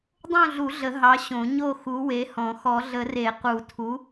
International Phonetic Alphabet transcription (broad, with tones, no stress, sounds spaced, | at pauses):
dˤ õ˥˨ ɮ u˨˩˦ ɮ ə˨˩˦ ɦ ɑ˨˥ ɕ õ˨˩˦ ɲ o˥˨ x u˨˥ w e˨˥ h ɔ̃˨˩˦ x ɔ˨˩˦ ɮ ə˨˩˦ r e˨˩˦ q u˨˩˦ tʰ u˨˥